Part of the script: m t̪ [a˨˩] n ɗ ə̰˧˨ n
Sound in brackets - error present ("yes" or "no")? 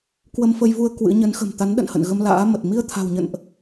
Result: yes